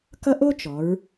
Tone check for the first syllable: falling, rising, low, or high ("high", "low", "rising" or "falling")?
high